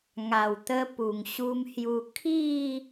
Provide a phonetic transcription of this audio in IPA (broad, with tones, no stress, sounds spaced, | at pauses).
ŋ a˨˩ w t̪ ə˧ p u˨˩ ŋ ɕ u˧ m h j u˧ kʰ i˥˧